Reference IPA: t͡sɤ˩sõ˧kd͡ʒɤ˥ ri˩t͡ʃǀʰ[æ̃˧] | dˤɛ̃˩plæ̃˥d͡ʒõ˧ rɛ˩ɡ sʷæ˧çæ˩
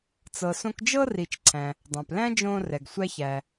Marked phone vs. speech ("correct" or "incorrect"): incorrect